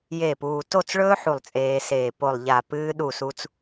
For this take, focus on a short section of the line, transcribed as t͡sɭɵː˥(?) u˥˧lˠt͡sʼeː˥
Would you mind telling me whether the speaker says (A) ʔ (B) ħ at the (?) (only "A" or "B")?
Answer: B